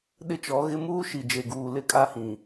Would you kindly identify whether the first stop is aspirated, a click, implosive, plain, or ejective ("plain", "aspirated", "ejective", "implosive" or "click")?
implosive